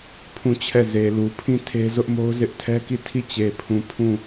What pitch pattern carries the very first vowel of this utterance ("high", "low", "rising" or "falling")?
falling